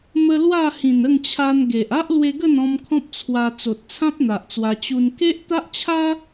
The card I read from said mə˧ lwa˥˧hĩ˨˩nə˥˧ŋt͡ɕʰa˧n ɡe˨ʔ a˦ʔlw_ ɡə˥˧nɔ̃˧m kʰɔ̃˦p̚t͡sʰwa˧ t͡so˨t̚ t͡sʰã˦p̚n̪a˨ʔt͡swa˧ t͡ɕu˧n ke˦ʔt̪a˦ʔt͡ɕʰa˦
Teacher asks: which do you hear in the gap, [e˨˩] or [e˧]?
e˧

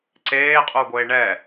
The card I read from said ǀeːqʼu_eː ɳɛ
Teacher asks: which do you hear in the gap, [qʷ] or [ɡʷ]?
ɡʷ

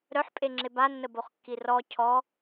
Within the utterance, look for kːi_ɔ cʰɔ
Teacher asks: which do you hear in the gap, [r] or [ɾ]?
r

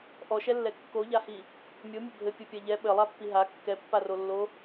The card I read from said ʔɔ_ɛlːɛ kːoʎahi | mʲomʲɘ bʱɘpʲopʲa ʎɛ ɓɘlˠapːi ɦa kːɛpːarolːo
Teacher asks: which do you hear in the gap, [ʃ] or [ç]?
ʃ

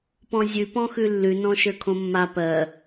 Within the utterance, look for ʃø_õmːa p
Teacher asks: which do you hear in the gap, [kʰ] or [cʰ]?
kʰ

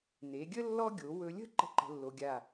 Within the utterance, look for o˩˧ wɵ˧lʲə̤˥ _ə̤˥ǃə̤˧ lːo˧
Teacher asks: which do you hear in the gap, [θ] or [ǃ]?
ǃ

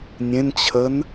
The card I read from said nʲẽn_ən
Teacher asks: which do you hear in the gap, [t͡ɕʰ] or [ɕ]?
t͡ɕʰ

